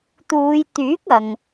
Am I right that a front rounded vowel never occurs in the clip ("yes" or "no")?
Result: no